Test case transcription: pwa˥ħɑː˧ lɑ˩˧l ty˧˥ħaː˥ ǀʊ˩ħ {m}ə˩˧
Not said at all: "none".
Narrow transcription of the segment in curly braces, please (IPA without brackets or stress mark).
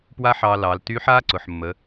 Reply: mː